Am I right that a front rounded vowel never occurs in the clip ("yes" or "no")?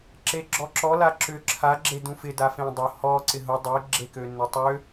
no